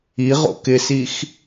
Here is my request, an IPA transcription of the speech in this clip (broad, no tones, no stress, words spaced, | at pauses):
iʁo̰ kɪsix